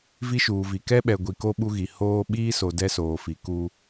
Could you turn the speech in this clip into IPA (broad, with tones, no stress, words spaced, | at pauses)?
vi˦ʃuː˨vi˨ kɛ˦ɓɛ˨ ɡʷi˨ko˦ ɓu˦ɣi˨ hoː˦ ɓiː˦so˨ dɛ˦soː˨fi˨ ku˦